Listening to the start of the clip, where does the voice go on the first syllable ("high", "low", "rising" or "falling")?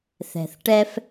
low